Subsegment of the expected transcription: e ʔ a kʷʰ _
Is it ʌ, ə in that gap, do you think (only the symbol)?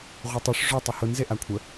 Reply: ə